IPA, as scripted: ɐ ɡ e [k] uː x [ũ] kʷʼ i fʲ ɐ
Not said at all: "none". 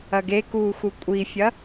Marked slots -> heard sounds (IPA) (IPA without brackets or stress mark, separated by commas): k, u